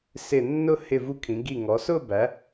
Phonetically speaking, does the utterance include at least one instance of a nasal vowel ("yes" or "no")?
yes